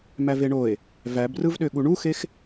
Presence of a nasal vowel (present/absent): absent